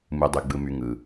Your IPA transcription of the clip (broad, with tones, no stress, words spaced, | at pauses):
mɯ˩dˤy˩ ɡ͡bɯ˩my˩ ŋɯ˩